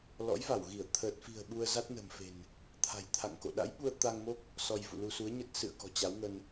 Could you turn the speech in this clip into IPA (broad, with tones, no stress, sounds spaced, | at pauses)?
l ɔ̰˧˥ j v a˧˩ w ɣ i˧˩ ə̯ t̪ʰ ə˨˩ t̚ f i̤˨˩ ə̯ ɓ u˧ ə̯ z a˦˥ t̚ n ə̤ː˨˩ m f e̤˨˩ n | t̪ʰ a̤˨˩ j t̪ʰ a̰˧˨ ŋ k o̰˧˨ ɗ a̰˧˥ j ɓ u˧ ə̯ t̪ a˧ ŋ m o˦˥ k̚ | s ɔ˧ j v ṵ˧˨ l u˧ s u˨˦ ə̯ ɲ ə˦˥ t̚ s ɨ̰˧˨ ə̯ k ɔ̤˨˩ t͡ɕ a˨˦ w ŋ ə˧ n